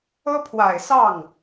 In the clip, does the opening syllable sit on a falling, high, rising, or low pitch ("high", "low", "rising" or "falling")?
high